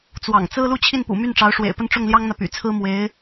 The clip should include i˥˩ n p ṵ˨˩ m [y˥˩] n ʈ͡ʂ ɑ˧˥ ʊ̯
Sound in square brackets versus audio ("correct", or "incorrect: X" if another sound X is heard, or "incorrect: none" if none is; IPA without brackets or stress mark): correct